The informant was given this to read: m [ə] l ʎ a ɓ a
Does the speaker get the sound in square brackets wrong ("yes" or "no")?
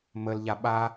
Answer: no